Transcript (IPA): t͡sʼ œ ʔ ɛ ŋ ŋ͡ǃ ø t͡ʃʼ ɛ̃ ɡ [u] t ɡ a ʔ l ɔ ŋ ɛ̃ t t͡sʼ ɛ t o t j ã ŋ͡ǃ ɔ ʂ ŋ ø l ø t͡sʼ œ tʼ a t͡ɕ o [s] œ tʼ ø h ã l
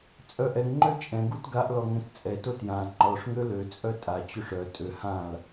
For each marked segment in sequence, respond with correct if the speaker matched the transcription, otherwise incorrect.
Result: correct, incorrect: ʂ

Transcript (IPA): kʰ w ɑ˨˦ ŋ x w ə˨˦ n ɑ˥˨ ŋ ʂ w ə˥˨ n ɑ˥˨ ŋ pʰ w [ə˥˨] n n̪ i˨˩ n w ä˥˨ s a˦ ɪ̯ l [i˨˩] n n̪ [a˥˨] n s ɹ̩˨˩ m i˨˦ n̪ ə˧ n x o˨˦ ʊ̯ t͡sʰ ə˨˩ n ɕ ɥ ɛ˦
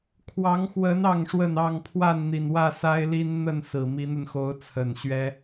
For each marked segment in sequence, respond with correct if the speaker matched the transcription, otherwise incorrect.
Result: incorrect: a˥˨, incorrect: i˦, incorrect: ə˥˨

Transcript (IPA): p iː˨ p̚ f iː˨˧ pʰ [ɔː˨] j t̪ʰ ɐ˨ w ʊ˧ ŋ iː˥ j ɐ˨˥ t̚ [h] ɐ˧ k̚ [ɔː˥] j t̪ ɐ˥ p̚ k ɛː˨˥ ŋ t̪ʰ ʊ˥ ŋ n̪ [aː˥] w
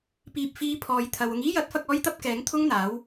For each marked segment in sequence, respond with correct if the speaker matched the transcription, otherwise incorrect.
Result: incorrect: ɔː˨˧, incorrect: f, correct, incorrect: aː˨˥

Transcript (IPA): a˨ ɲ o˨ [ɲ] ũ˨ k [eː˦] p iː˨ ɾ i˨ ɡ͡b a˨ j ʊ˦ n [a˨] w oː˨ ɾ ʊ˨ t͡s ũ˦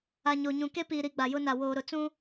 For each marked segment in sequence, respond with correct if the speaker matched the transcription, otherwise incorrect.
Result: correct, incorrect: e˦, correct

